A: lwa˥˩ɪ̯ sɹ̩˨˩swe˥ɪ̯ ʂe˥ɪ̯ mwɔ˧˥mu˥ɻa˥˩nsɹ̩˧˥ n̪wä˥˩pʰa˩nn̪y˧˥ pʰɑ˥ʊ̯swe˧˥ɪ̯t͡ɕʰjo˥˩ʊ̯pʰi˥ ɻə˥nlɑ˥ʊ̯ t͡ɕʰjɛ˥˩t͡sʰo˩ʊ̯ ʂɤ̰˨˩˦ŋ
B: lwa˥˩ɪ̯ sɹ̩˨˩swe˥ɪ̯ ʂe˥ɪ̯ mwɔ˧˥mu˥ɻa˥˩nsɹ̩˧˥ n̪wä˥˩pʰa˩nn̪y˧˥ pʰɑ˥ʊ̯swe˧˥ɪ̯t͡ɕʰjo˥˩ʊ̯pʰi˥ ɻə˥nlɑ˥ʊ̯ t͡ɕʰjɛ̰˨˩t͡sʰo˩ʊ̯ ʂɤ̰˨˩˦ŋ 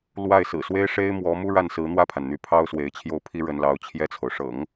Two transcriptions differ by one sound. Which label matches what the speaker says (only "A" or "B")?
A